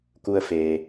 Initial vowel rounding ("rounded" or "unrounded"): rounded